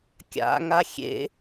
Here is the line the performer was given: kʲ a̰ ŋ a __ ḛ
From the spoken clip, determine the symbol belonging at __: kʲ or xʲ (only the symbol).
xʲ